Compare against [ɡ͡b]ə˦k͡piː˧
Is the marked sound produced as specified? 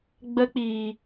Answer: yes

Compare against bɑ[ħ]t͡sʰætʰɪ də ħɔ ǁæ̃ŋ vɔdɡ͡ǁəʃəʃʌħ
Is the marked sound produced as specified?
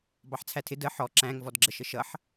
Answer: yes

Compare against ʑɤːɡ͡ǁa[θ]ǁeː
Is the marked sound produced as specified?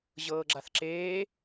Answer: yes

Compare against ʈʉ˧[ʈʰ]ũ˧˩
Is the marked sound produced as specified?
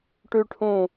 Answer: yes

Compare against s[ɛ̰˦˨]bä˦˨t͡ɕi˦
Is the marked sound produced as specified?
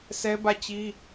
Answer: no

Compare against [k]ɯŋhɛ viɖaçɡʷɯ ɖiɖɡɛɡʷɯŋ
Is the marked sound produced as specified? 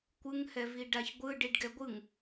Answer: no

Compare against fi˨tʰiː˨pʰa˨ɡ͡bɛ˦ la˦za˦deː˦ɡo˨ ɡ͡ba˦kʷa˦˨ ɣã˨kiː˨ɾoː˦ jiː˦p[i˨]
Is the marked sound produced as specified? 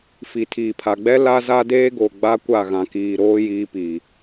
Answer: no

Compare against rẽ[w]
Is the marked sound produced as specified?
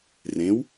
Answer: yes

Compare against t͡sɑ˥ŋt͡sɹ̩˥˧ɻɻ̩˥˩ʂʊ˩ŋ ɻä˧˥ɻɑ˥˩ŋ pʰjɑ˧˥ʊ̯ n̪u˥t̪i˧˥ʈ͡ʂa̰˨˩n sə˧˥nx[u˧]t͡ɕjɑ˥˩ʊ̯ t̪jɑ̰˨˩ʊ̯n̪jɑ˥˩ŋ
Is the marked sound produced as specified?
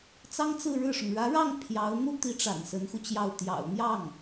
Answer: yes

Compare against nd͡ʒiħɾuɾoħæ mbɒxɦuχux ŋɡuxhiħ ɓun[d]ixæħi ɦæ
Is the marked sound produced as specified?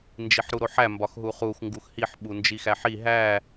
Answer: no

